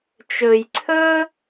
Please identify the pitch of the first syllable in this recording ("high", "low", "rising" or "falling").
low